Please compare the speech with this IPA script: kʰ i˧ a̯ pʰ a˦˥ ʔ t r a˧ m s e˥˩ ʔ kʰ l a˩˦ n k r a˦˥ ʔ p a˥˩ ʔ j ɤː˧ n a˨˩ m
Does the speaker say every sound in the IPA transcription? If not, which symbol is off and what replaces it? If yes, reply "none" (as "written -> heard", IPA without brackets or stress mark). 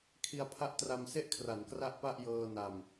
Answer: l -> r